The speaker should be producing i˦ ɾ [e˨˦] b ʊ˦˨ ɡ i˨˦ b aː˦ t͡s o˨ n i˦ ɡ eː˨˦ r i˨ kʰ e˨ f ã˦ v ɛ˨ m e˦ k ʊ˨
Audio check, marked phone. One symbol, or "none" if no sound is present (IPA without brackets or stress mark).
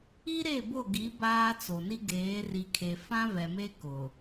e˦˨